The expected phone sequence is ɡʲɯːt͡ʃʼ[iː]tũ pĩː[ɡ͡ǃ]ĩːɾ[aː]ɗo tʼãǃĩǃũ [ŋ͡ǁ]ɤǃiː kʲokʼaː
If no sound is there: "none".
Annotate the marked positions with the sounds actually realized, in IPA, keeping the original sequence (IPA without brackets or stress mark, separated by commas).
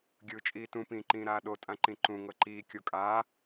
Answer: iː, ǃ, aː, ŋ